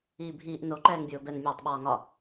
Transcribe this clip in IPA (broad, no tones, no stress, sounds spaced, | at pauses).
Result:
iː bʱ iː ʔ n o ǃ ɛː ŋ bʲ oː b ɛ n mʲ ɒː tˤ ɓ ɒː ŋ ɒ